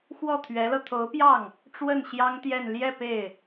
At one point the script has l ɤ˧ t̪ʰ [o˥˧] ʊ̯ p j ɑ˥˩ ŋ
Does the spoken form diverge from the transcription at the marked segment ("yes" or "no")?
yes